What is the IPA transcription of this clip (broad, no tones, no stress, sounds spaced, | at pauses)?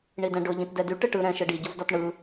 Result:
ɳ i d ɛ̃ ɖ ʊ ʎ ĩ t d ɛ d y ʈ ɯ ʈ ɯ ɾ ɛ̃ ʃ ɯ ɖ i ɟ ʊ v d ɒ t ɳ ɯ